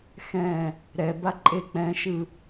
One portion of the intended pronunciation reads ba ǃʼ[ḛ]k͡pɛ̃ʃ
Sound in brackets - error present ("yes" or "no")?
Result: yes